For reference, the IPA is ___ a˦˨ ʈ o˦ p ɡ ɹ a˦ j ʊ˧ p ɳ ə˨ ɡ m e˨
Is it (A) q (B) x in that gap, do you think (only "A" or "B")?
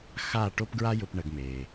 B